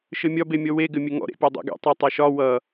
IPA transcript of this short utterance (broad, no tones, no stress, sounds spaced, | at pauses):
ʃ ɘ mʲ ɒ b e mʲ ɔ w e ɡ ɘ mʲ ɘ ŋ ɔ̰ ɾ ḛ pʲ ɔ dˤ ḛ ɡ ɛ̰ tˤ ɛ tˤ ɛ ʃ ɒ w ʌ